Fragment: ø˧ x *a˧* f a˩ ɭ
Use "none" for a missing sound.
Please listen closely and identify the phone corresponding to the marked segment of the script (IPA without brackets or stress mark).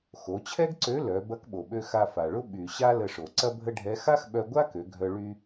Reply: a˧